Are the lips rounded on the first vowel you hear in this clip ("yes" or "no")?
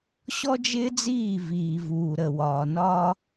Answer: yes